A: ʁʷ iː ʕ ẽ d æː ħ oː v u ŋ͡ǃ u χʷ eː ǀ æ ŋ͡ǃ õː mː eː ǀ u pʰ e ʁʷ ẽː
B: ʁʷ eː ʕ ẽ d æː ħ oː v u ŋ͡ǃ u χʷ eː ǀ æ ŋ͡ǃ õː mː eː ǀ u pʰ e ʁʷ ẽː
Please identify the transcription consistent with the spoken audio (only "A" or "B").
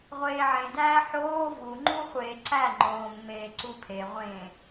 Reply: B